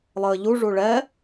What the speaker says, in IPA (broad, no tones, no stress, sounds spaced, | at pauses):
lˠ əː ʎ u ʐ u ɭ ɛ